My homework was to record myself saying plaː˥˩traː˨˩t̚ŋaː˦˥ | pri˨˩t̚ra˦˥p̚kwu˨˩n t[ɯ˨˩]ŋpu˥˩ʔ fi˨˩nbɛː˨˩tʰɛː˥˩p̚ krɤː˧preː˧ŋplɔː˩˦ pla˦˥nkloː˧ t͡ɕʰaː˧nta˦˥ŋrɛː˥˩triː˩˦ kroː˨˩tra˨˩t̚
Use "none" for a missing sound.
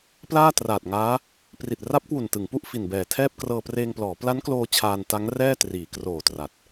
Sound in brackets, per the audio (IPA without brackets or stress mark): ɯ˩˦